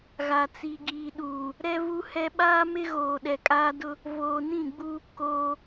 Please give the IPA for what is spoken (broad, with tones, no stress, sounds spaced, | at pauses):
ɣ a˨ t͡s i˨ ɡ iː˨ ɗ uː˨ | ɾ ɛ˦ v u˦ h ɛ˦ ɓ aː˦ m ɪ˦ ɣ oː˨ ɗ ɛ˨ kʼ aː˦ d ʊ˦ | v oː˨ n ĩ˦˨ ɡ͡b u˦ | k oː˦